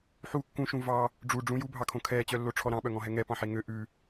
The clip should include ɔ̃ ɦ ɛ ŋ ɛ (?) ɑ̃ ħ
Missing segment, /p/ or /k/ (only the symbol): p